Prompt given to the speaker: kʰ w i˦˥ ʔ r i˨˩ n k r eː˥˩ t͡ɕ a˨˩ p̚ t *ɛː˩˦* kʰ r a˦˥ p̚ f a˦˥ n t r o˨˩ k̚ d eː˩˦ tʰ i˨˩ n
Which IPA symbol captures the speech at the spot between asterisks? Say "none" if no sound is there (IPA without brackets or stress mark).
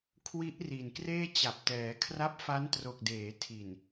ɛː˩˦